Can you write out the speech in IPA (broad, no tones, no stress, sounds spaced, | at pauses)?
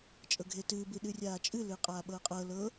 t͡ʃʼ ɤ ɡʱ e t ɨː b ɨ ɗ ɨ rʲ aː t͡ʃʼ ɨ l ɨː qʼ aː ɓ ɤː qʼ ɤ l ɤ